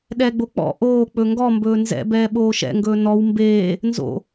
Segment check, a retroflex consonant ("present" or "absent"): absent